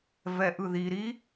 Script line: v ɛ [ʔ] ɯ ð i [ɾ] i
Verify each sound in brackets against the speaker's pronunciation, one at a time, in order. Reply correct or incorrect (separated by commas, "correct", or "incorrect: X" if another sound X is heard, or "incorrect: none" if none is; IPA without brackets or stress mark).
correct, correct